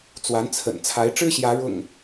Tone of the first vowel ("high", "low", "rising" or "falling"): rising